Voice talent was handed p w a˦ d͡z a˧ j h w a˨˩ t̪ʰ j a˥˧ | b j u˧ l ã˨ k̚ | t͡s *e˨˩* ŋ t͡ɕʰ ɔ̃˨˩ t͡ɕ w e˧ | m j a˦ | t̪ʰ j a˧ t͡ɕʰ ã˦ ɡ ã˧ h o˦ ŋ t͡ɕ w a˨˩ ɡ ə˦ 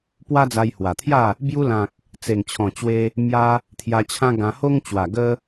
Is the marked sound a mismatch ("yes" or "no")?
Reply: no